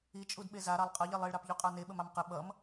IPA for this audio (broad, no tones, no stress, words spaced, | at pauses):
it͡ʃʼud ɓeza ɾɑlˠqʼʌʎilˠ iɭɾɑpʎuqʼɑ neɓəm ɑmqə ɓʌm